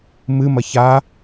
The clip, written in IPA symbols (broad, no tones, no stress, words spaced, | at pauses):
mɨmɐ ça